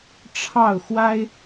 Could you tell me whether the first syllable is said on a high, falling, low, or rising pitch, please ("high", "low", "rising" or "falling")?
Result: falling